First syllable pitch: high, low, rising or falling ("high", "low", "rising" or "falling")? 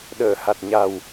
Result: low